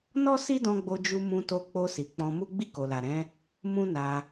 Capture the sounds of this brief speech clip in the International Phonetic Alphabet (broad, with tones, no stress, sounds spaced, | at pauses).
n ɔ˦ s i˦ d ɔ̃˧ ɡ͡b o˧ d͡ʒ u˧ m ũ˧ t o˧ k͡p o˧ s i˨ k͡p ɔ̃˧ m u˦ ɡ͡b i˦˨ k o˨ l a˨ ɾ ɛ̃˨˦ | m ũ˦ n a˧